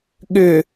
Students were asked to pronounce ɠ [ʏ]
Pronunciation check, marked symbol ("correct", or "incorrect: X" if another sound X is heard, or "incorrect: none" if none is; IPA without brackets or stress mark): correct